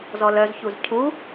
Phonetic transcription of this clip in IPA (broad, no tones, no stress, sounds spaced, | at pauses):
z ɔ l œ z ç u z cʰ u